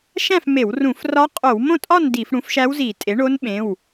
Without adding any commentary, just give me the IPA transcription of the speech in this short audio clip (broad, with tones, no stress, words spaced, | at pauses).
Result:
ʃæ̃˥˨fme˧˩˧w rũ˧˩˧f rɒ˧˥ qʼo˧˩˧wmõ˥˨tʼɒ˥˨n di˧˩˧f ɽũ˩˥fʃæ˧˥wzi˧˩˧ tʼe˩˥ɳo˧˥nɓẽ˩˧˩w